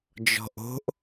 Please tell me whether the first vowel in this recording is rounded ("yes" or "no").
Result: yes